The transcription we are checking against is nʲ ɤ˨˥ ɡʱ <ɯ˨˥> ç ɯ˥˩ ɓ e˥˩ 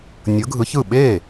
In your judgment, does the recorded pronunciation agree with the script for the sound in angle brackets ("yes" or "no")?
yes